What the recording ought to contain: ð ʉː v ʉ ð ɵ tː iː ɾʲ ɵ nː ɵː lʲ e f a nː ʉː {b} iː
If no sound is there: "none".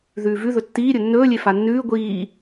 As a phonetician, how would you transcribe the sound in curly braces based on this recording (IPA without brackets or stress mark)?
ɡʷ